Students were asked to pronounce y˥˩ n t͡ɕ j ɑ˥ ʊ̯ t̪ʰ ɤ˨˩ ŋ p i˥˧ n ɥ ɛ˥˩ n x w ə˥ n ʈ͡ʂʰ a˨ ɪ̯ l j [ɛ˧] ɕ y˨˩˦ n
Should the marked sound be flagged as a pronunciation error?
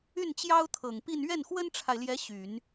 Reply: yes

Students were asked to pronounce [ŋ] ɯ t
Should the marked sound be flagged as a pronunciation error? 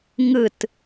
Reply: no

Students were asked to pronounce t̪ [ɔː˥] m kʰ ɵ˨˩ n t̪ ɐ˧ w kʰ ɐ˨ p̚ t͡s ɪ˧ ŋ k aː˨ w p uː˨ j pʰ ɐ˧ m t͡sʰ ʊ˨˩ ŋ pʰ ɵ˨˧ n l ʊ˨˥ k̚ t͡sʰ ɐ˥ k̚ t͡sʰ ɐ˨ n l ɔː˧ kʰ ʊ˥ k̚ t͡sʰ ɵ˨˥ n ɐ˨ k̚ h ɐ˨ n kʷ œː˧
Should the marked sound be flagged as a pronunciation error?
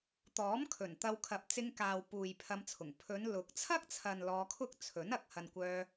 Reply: yes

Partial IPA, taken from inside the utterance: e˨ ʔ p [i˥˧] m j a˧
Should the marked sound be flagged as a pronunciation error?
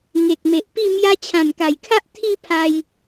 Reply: no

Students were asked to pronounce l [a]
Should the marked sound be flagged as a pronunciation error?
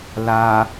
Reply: no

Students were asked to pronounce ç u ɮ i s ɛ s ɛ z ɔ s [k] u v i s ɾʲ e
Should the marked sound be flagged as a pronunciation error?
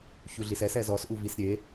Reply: yes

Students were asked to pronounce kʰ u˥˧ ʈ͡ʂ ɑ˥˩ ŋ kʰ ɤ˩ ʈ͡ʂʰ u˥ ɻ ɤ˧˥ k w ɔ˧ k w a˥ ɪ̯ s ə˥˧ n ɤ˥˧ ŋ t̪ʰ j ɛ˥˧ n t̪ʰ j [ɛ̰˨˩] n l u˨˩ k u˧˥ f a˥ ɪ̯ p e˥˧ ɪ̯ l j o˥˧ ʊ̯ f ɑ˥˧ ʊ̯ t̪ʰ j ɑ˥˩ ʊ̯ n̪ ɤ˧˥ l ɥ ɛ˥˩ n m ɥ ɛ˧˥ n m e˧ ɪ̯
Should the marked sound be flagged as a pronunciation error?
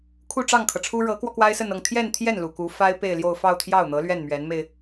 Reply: yes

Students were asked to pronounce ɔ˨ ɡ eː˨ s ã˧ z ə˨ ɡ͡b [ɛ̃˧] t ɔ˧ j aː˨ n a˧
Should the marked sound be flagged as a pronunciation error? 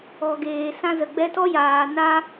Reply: yes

